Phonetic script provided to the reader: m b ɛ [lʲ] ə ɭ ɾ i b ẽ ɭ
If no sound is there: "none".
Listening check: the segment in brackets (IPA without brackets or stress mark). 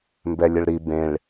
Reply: lʲ